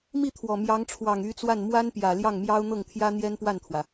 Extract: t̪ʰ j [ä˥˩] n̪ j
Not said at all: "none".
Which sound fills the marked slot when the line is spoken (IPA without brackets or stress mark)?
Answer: ä˥